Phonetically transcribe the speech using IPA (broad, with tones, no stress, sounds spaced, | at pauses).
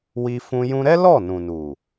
w i˦ f ũ˦ j ũ˧ ɾ ɛ˦ l ɔ˦˨ n ũ˨ n u˨